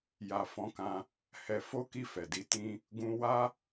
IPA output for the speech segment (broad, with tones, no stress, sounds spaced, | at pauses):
j a˨ f ɔ̃˨˦ k ã˧ | h ɛ˧ f o˦ k i˦˨ f ɛ˨ d i˧ t ĩ˦ | ɡ ũ˧ w a˦